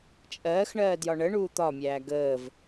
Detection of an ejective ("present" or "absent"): present